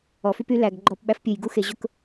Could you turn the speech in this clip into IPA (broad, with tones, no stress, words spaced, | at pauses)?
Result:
ɔ˨fy˦py˨˦ læ˨ɡ ɡ͡ǃɔ˦˨pɓæ˦f pʲu˨jɡu˦xe˨ʑʊ˦k